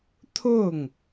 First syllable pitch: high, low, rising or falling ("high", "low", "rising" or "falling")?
falling